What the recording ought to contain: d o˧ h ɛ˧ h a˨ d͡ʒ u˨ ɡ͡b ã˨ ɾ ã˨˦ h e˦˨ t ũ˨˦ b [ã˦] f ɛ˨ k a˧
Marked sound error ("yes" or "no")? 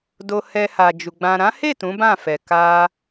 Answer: yes